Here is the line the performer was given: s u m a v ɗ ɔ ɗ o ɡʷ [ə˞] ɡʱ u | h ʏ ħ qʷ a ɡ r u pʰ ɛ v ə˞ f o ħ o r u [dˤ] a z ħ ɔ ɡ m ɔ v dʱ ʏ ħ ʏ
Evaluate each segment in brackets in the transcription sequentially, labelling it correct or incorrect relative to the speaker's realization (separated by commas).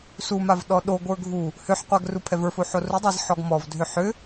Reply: correct, correct